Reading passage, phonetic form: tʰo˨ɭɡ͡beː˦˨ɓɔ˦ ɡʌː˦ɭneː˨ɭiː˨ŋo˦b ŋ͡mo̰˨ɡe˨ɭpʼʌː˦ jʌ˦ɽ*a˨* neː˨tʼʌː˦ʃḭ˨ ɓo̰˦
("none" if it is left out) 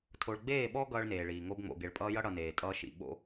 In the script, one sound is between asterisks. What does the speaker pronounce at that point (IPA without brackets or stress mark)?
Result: ʌ˨